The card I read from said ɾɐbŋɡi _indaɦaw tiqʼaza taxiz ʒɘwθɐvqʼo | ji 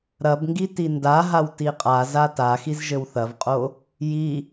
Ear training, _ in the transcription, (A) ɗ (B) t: B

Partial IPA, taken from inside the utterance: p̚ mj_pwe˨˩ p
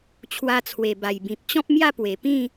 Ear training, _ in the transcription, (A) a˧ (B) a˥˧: B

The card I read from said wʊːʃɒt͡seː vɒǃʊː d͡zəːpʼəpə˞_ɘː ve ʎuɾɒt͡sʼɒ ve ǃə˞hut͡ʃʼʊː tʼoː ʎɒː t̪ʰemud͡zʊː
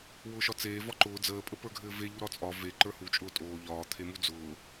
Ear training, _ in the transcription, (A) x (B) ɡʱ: B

